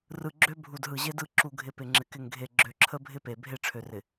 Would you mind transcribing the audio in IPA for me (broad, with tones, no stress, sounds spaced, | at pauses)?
r ɯ˨ ɡ͡ǁ ø˦ bʱ u˨ d ɦ ɯ˨ ʑ e˦ d ɯ˦˨ ǁ u˨ ɡʱ ɪ˨ p ɪ˨ ŋ͡ǁ ɪ˨ k ɪ˨ ŋ ɡʱ e˨ ɡ͡ǁ ø˨ ǁʰ ə˦ bʱ ɪ˦ p e˨ bʱ e˦˨ ʈ͡ʂʰ ø˨ r ɪ˨